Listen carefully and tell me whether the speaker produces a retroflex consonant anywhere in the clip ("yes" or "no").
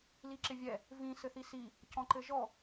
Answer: no